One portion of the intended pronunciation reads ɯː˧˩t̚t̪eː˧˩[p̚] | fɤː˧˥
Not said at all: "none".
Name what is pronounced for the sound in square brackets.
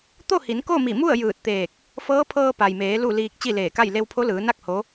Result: k̚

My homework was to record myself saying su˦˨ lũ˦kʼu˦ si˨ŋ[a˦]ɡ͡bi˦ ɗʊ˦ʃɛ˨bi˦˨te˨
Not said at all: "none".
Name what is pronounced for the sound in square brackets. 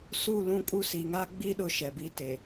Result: a˦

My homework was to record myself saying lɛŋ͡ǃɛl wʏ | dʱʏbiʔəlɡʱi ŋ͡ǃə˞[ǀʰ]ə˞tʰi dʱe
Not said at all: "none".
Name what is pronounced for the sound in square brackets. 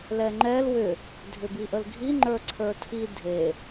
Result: ǀʰ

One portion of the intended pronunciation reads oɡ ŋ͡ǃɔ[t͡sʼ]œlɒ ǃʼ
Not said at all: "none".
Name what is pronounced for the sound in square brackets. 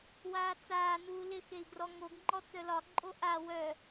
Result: t͡s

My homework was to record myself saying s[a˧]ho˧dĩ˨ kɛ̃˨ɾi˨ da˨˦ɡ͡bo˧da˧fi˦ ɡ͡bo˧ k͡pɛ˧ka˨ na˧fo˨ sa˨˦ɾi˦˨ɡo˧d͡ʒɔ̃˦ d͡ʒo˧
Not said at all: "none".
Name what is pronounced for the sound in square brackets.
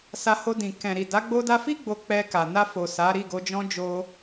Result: a˧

